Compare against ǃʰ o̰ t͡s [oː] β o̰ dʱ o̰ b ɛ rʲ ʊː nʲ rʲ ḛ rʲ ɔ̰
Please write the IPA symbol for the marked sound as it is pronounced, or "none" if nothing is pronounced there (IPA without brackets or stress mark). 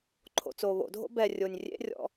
oː